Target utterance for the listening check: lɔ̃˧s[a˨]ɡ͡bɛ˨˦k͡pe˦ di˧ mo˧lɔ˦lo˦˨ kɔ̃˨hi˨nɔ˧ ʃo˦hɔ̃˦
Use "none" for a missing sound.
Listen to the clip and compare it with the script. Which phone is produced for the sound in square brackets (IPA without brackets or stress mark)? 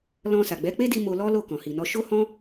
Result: a˨